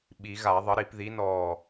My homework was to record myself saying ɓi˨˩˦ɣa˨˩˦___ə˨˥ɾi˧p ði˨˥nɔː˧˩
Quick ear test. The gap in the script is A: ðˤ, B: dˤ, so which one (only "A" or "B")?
A